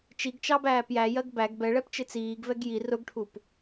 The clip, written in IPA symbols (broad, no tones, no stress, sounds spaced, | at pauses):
t͡ʃ i ɡ t͡ʃ ɑ b æː p j æ j ɜ ɡ b æ ɡ b ɛ ɭ ɛ p t͡ʃ ɪ t͡s iː ɡ v ɛ ɡ j i r ʊ ɡ ʈʰ u p